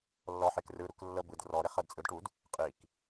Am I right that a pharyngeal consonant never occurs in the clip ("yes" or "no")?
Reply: no